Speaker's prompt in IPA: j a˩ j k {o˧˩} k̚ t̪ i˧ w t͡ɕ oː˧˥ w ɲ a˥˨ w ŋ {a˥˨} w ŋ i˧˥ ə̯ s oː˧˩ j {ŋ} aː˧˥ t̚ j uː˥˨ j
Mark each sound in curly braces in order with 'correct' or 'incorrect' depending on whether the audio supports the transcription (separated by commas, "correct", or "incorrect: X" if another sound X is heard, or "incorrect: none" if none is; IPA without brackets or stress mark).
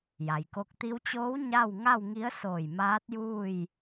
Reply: incorrect: o˧, correct, incorrect: m